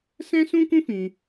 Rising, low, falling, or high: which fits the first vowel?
high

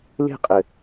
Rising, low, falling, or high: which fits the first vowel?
falling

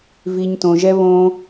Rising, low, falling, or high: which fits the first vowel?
low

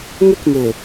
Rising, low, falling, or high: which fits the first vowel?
high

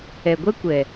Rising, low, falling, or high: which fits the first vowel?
low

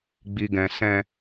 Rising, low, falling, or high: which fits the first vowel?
low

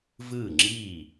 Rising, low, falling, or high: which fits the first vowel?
falling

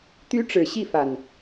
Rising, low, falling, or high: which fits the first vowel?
high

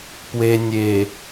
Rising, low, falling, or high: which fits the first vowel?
low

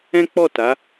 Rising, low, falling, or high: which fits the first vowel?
high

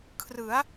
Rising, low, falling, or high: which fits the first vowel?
rising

